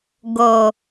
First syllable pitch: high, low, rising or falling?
low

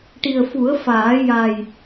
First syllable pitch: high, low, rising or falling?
low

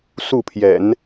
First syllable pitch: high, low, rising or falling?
falling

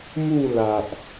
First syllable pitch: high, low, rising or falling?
falling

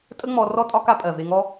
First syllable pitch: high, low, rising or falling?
high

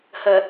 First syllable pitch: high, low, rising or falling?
low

